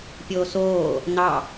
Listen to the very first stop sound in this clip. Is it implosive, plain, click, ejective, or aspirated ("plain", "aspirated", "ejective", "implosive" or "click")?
plain